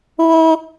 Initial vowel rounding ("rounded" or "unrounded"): rounded